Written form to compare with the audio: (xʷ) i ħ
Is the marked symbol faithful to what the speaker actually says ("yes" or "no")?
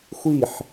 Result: yes